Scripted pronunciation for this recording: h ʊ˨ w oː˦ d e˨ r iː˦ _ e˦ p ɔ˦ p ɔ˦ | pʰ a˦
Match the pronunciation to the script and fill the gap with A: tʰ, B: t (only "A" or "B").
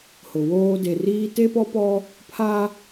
B